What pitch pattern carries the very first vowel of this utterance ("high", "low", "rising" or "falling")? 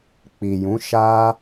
low